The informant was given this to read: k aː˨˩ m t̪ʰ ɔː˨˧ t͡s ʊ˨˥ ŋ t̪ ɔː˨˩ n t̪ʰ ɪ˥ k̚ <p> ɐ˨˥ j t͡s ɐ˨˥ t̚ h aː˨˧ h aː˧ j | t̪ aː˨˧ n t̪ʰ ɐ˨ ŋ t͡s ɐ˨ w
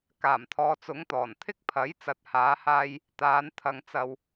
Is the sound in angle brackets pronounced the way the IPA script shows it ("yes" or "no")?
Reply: no